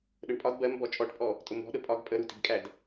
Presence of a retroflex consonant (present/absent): present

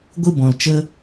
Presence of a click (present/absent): absent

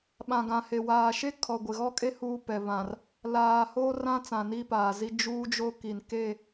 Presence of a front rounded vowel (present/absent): absent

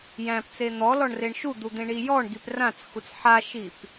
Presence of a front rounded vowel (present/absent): absent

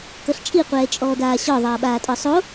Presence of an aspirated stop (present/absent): absent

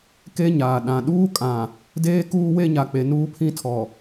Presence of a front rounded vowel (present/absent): absent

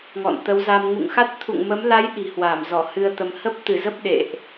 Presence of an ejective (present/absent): absent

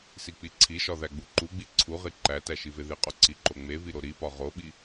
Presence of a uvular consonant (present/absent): present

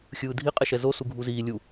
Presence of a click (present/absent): absent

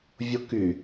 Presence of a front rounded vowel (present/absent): present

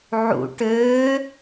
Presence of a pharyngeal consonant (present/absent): present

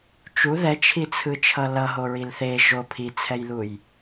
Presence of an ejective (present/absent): absent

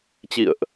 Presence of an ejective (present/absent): absent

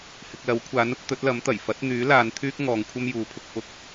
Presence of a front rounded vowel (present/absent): present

